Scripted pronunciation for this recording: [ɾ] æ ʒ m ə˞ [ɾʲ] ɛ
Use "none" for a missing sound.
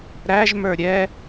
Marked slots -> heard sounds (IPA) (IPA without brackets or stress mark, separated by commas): ɾ, ɾʲ